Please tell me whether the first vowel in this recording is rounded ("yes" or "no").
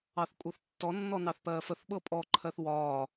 no